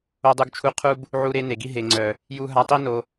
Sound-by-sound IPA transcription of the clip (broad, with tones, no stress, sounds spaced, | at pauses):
o˧ dˤ u˧ ɡ t͡ʃʰ u˧ qʰ u˦ b | ʕ u˧ ɾ e˧ n e˨ ɡ i˧ ɦ e˨ ŋ͡ǀ œ˨ | j u˧ ɦ a˧ tˤ i˦ n o˧